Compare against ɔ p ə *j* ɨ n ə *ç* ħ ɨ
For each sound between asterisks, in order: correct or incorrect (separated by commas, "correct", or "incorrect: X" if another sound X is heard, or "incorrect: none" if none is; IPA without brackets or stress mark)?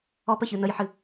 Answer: incorrect: ç, incorrect: j